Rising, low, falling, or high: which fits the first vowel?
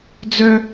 high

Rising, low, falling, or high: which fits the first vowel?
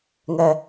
low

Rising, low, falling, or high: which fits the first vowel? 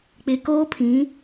low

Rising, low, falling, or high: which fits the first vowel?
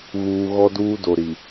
low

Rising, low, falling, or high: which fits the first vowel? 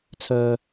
low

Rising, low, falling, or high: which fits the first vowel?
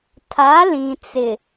rising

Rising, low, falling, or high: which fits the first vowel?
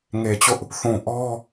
low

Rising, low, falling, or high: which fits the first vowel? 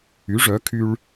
rising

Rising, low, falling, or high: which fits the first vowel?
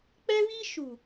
high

